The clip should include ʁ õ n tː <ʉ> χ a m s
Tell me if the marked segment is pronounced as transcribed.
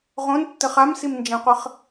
no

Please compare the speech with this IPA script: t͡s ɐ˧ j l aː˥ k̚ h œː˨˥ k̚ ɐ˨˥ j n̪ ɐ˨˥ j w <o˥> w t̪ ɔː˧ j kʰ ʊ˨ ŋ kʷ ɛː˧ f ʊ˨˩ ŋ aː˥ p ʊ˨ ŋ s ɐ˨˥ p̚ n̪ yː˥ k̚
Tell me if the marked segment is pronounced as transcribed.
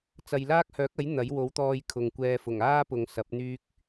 no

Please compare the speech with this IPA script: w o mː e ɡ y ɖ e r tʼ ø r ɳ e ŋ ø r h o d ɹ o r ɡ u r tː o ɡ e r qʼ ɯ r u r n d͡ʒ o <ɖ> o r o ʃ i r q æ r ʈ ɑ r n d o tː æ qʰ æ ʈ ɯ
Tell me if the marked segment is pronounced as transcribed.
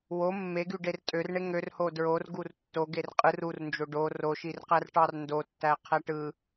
yes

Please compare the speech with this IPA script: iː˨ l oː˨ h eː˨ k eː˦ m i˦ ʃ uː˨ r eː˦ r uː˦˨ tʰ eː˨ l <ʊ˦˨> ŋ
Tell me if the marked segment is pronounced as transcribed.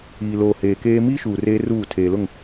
yes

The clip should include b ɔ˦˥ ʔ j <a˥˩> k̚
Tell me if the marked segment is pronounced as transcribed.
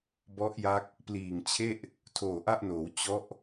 no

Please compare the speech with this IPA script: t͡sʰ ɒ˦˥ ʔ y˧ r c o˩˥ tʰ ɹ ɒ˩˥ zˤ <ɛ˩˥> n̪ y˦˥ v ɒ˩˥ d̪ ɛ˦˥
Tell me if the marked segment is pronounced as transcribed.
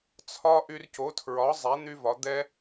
yes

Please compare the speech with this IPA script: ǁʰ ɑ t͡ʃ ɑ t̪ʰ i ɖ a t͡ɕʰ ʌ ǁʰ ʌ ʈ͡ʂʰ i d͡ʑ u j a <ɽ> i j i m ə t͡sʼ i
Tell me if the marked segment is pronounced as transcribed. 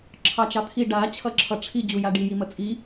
no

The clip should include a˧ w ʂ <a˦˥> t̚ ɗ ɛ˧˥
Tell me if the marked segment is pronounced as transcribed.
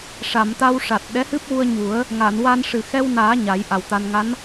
no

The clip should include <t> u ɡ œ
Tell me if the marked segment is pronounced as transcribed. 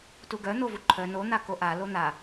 yes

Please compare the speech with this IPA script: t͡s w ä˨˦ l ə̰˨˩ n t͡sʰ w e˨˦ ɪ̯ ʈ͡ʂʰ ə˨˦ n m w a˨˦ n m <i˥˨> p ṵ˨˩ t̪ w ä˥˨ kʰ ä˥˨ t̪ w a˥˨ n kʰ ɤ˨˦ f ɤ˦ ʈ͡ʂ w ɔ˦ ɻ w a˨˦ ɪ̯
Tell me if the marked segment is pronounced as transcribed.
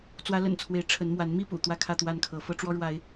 yes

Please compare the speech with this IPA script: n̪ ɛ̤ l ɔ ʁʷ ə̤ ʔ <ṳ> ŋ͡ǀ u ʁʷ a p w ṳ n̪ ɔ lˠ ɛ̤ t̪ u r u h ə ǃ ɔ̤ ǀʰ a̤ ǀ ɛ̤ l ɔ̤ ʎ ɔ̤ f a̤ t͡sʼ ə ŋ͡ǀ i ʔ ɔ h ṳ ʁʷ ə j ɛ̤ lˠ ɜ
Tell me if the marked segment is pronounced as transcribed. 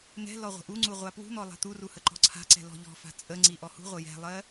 no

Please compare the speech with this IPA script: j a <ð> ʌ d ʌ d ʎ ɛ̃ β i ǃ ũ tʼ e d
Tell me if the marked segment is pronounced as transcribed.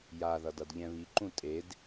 yes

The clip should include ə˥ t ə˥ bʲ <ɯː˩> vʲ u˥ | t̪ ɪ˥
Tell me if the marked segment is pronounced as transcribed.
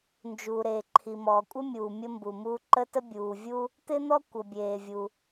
no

